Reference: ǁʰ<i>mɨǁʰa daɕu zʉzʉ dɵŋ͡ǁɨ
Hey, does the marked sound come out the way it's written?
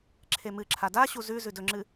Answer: no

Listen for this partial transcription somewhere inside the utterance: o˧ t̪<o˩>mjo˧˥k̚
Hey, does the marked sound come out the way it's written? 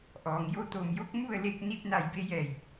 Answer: no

